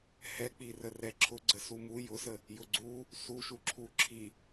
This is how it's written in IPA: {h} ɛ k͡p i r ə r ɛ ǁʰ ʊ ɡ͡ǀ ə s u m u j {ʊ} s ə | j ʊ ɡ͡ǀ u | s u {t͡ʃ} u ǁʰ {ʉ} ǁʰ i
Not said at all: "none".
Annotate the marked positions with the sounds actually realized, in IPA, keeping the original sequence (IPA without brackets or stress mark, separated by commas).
h, ʊ, ʃ, u